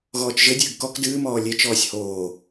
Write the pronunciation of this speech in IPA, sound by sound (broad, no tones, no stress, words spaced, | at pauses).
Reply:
ɣɔːt͡ʃʒɘdʲɨːɡ kɔk dɨːmɔː lʲet͡ʃɔːsʲ hoː